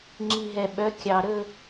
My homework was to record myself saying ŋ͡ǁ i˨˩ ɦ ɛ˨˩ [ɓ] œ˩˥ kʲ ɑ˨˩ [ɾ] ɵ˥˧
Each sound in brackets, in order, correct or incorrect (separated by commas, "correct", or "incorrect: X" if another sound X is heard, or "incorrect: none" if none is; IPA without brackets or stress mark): correct, correct